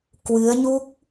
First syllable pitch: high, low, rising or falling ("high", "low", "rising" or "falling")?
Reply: rising